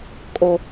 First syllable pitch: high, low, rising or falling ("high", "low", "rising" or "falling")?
low